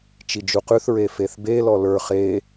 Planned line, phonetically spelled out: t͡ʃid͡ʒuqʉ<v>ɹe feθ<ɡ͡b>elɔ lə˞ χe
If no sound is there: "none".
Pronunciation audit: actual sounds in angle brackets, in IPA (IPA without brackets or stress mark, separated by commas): θ, b